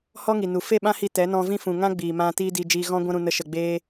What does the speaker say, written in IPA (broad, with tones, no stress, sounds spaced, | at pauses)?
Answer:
h ɔ˦ ŋ i˨ n u˨ f e˦˨ ɓ ã˦ h i˧ t ɛ˨˦ n ɔ̃˧ v ĩ˦ f ũ˨ ŋ ã˦ ɡ͡b iː˨ m ã˧ t iː˦ d i˧ d͡ʒ iː˧ ɣ ɔ̃˦ ɡʷ ã˦ ɾ ũ˧ n ə˦ ʃ ə˧ ɡ͡b eː˦